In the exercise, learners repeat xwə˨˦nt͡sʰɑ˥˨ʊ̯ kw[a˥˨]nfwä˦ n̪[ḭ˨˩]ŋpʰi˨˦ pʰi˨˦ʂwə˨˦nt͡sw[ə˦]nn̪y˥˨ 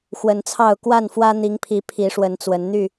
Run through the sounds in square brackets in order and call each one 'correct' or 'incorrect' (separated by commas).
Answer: correct, incorrect, incorrect